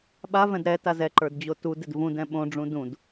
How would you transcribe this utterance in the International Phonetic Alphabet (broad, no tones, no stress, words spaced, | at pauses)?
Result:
ɓavɛ̃d ɾɛtaz ɛǃə˞dd͡ʑo tudɪd vũdɛ̃ ɓõɖ͡ʐũ dũd